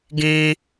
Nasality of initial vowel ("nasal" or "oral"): nasal